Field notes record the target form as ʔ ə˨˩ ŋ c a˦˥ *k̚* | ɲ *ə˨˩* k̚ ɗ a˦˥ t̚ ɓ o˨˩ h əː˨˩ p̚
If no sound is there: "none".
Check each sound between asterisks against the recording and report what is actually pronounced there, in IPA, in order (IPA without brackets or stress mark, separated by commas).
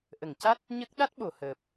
t̚, ə˦˥